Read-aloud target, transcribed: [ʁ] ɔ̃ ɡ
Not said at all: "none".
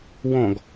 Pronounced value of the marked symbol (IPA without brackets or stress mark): w